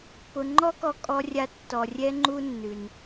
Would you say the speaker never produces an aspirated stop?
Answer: yes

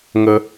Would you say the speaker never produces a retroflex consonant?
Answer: yes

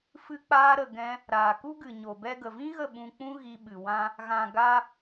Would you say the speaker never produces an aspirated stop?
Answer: yes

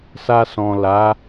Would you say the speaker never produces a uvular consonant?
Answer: yes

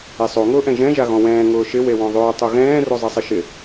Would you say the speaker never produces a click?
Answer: yes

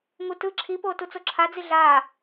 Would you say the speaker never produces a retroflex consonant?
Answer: yes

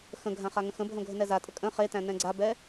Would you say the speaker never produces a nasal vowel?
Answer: no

